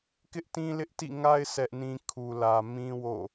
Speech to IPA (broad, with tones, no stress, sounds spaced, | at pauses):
k ɪ˦ ʔ t ĩ˦ l ɪ˦ ʔ t ḭ˦˨ ŋ a˦ ɪ̯ sʰ ɛ˦ ʔ n ĩ˦ kʰ u˨ l ä˨ m ĩ˦ w o̰˦˨